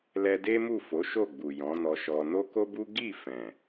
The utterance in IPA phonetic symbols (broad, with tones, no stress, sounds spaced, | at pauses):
l ɛ˧ d e˦ m u˦˨ f o˨˦ ʃ o˦˨ ɡ͡b u˨ j ɔ̃˨˦ n ɔ˧ ʃ ɔ˧ n o˦ k o˦ b u˦ ɡ i˦˨ f ɛ̃˨